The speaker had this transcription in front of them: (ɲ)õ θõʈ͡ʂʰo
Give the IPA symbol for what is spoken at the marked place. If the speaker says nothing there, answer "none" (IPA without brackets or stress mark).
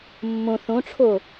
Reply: mː